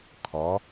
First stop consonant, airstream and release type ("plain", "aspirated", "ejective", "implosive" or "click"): aspirated